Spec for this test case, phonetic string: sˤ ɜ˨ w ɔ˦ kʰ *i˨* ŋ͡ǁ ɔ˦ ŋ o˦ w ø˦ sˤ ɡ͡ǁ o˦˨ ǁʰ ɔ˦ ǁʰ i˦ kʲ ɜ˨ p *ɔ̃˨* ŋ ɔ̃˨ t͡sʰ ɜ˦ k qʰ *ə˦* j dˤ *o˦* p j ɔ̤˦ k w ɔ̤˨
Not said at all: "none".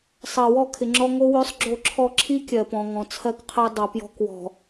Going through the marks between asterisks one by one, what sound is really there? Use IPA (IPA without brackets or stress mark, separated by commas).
ɪ˨, ɔ̃˨, ə˦, o˨